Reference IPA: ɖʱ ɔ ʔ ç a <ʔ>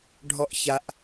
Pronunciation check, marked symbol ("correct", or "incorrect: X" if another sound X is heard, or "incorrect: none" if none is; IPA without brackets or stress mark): correct